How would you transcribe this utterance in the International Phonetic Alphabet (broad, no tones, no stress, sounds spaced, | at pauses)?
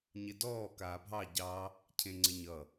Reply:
ɲ ɪ d ɔː k aː bʱ ɑ ɟ ɑ | cʰ ẽ ŋ͡ǀ ɪ ɲ ʌ